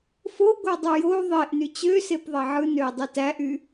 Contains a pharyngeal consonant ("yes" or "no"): yes